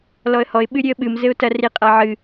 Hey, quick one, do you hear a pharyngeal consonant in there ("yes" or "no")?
yes